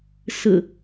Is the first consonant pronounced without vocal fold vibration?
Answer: yes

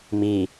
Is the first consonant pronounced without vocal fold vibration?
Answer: no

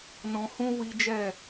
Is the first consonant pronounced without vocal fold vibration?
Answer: no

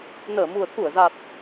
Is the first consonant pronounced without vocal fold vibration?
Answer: no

